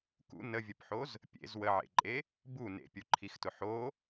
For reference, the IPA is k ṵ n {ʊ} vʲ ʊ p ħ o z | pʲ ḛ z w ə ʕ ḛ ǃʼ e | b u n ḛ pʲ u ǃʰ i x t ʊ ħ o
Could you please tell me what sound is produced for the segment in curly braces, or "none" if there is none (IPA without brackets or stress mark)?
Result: ə